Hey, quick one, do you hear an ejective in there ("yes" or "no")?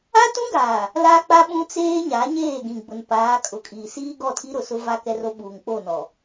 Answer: yes